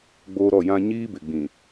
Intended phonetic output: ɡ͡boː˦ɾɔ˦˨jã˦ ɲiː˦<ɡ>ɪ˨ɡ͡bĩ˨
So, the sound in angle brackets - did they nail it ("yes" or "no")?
no